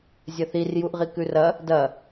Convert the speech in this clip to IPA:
zʲ ɐ θ i r j u ʔ ʁ i k ʉ r ɐ | d ɐ

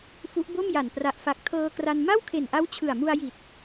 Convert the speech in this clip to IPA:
f u˦˥ ʔ b o˥˩ m j a˨˩ n p r a˨˩ ʔ f a˨˩ k̚ tʰ ɤː˧ k r a˧ n m a˥˩ w kʰ e˨˩ n ʔ a˦˥ w t͡ɕʰ ɯ˨˩ a̯ m u˧ a̯ j i˨˩ t̚

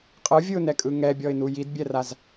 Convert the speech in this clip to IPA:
qʼ ɯ vʲ ɯ ʊ̯ n ɛ kʼ ɯ ŋ ɛ bʲ ɔ ɪ̯ n u j i d bʲ ɛ r a z

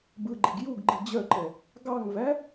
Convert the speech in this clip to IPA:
b ɯ ɡ͡ǃ i ɡ j u ɡ ɡ͡ǃ i d͡ʑ œ ǃ ɛ | ɡ ɑ ŋ v æ

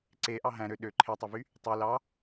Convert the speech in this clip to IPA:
ǀ e ʔ ɑ ɦ æ̃ ɾ ø ɗ ø ǃʰ e tˤ ø v y | tˤ y l ɑ

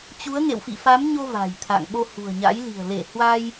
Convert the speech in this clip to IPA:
t͡ɕ u˨˦ ə̯ ŋ ḛ˧˨ w f ḭ˧˨ f a˨˦ m ɲ o˧ v a̤˨˩ j t̪ʰ a̰˧˨ ŋ ɓ o˧ h ṳ˨˩ ə̯ ɲ a̰˧˥ j l i̤˨˩ ə̯ l e˧˩ h w a˧ j

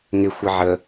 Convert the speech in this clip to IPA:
ŋ ɪ xʷ ə ʕ ə

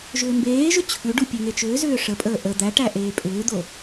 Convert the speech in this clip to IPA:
ʒ ʏː m b eː ʒ ʏ t͡ɕʰ ʉ ɖ u pʲ e ŋ e t͡ʃ ʏː z ʏː ʂ ə pʼ əː ʔ ə d̪ æ ʈ æ ʔ eː pʼ ʏː d̪ o

